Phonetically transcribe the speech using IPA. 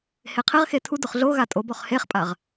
h e qʰ ɪ ʁ x e tʰ u d ʊ χ ɮ o ɣ a tʼ o b ɔ χ h e χ pʼ a ʁ

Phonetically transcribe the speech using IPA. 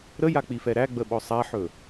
ɾ ə j a k͡p i f ɛ ɾ æ ɡ͡b ə ɓ ɔ sˤ a ħ ɵ

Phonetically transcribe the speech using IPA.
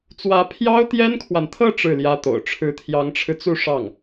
t͡s w ä˧˥ pʰ j ɑ˥ ʊ̯ t̪ j ɛ˥ n kʰ w a˨ n t̪ʰ ɤ˥˧ ʈ͡ʂ ɻ̩˥˩ l j ä˥ t̪ o̰˨˩ ʊ̯ ʈ͡ʂʰ ɻ̩˧˥ t̪ʰ j ɑ˧˥ ŋ ʈ͡ʂʰ ɻ̩˧ t͡s u˥˧ ʂ ɑ˥˩ ŋ

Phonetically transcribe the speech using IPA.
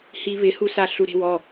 h i β ɪ h u s a ɬ u ɾ e̤ w ɔ

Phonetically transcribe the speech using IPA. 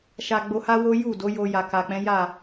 ʃ a˧ ɡ͡b o˧ h a˦ w o˦ j u˦˨ d o˨˦ j o˧ j a˨ k a˨ k͡p ɛ̃˨˦ j a˦˨

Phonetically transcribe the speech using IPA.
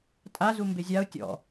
tʼ a z u m b e zʲ a ʊ̯ tʲ ɔ̰

